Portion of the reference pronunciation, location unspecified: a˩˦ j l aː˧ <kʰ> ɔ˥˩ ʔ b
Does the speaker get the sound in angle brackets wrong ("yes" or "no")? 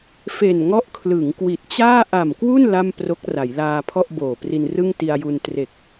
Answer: yes